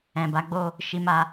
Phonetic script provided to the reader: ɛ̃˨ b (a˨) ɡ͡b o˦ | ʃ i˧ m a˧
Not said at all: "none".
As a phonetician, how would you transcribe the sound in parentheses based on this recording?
a˨˦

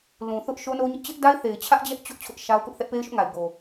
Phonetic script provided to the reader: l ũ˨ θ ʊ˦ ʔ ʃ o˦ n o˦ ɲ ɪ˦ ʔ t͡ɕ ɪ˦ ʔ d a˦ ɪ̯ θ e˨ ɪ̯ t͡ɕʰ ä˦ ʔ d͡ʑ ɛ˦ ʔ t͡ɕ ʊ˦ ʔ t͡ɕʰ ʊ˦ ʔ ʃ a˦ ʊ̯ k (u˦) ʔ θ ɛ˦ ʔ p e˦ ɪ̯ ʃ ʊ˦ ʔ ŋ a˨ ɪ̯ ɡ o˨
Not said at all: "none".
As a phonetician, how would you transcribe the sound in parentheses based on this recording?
ʊ˦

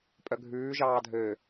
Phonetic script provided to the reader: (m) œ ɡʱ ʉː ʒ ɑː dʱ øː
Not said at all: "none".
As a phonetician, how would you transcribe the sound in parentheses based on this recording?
pʼ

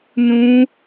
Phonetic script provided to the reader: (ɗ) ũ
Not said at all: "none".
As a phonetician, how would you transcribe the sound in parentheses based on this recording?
n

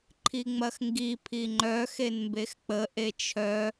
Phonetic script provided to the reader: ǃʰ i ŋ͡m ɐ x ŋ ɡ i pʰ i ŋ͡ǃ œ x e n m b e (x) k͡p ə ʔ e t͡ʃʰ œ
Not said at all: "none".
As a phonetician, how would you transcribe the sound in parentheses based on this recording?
x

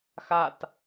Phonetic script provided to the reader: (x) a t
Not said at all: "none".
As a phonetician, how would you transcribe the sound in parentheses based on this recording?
x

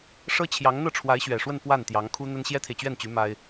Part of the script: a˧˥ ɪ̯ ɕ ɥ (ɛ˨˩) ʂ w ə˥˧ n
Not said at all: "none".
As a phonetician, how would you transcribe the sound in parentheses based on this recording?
ɛ˨˩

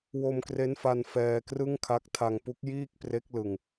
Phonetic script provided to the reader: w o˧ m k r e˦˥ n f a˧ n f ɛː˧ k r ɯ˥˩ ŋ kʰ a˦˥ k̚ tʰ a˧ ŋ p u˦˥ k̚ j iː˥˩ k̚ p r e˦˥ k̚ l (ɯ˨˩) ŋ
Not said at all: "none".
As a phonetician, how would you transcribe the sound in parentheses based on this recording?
ɯ˧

